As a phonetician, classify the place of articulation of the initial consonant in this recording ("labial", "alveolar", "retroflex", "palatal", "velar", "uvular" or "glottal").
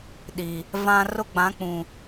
alveolar